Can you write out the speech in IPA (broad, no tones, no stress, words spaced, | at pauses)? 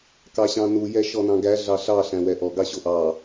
kɑɕɑ̃nu jɛʃɔnɑ̃ɡæ ɮɑɬɑ ɬæ̃wɛʔɔ ɡɑɕoʔɑ